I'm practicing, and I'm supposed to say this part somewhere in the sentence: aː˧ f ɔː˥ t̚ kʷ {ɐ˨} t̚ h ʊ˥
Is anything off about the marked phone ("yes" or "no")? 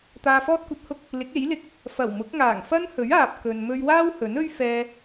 yes